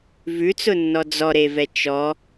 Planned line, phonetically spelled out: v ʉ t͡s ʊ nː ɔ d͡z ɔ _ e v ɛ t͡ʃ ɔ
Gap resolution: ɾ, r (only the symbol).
ɾ